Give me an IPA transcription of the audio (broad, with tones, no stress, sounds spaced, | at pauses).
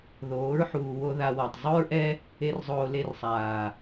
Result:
ð oː˨˦ ɹ ħ uː˨ w o˧ ð a˧ w ɔ˨ tˤ zˤ u˦ ɹ ʔ ɛ˦ | e˦ r zˤ oː˧ l e˦ r sˤ aː˨